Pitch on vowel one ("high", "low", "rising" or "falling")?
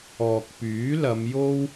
low